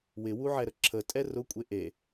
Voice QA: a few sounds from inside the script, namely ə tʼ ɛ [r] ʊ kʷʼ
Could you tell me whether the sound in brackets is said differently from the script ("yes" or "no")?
no